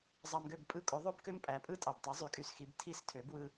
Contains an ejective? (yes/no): yes